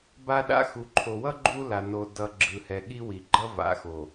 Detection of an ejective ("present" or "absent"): absent